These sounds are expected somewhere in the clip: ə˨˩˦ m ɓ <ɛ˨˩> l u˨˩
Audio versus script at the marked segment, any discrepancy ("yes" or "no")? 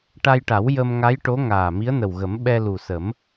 yes